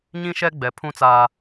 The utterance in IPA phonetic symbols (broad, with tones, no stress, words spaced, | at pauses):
ɲĩ˦ʃɛ˦ ɡ͡bɛ˨pʰũ˦t͡saː˨